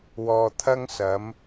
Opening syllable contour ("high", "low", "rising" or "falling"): low